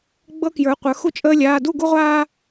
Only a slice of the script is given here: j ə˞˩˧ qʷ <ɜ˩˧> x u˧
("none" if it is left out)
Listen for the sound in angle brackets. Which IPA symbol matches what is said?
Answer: ə˞˩˧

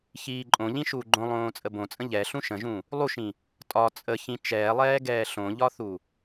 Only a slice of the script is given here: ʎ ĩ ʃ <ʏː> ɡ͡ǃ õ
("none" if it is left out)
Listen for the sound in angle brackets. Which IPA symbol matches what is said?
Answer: uː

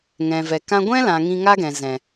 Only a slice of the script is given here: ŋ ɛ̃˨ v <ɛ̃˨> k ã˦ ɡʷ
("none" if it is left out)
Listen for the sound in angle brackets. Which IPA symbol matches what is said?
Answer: ɛ˨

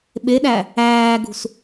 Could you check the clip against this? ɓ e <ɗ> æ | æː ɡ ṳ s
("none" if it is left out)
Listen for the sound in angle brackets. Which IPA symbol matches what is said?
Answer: ɗ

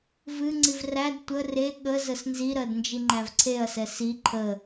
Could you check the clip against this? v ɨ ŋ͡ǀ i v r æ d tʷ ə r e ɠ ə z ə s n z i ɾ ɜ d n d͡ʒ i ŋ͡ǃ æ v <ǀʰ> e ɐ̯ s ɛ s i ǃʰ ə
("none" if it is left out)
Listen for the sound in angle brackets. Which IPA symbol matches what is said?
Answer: ǀʰ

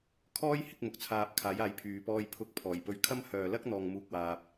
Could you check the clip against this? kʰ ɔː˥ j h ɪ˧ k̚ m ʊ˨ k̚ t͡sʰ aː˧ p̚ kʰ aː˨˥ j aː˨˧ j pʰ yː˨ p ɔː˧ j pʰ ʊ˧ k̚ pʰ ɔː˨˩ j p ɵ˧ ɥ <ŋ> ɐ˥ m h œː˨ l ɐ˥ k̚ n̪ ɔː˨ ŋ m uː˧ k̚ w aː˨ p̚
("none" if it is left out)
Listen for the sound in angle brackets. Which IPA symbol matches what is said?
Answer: kʰ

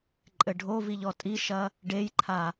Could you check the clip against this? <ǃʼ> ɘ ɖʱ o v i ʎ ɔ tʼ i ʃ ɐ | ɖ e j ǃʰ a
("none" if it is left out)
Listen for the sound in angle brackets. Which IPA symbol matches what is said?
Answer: ǃʼ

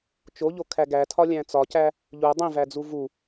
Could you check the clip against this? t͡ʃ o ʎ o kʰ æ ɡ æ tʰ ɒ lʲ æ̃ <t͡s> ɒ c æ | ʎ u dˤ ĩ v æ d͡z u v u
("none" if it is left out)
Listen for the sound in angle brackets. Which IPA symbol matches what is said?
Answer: t͡s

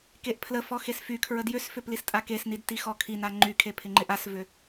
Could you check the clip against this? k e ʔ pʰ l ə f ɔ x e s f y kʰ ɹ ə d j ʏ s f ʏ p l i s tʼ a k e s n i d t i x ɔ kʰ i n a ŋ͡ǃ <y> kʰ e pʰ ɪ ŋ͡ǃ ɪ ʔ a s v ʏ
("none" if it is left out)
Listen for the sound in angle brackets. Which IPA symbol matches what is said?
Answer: y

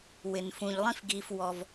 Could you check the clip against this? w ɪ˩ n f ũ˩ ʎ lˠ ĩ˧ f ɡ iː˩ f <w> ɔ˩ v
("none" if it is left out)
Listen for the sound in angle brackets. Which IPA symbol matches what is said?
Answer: w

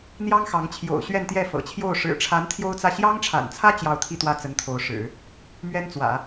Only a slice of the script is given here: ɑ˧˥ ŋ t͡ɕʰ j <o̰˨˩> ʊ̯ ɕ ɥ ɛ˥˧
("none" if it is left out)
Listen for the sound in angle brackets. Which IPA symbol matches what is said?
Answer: o̰˨˩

